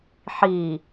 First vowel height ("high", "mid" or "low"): high